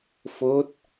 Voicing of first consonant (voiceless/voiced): voiceless